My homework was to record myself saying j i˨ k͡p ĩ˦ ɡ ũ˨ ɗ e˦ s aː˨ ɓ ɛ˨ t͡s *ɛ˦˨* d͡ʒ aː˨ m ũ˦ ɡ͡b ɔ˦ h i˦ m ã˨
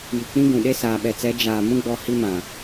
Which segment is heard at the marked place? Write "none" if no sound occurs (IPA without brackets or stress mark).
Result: ɛ˨˦